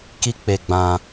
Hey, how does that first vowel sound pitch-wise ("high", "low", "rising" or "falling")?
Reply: high